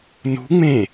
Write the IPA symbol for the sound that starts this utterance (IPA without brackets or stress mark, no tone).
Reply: n